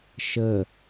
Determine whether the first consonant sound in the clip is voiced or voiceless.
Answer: voiceless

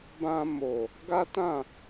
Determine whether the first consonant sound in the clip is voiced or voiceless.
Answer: voiced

